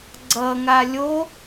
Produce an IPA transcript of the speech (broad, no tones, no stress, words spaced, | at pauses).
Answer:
ɡ͡ǀʌŋa lʲo